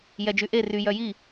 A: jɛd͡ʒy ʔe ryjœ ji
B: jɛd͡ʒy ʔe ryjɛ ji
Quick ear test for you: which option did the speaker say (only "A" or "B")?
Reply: A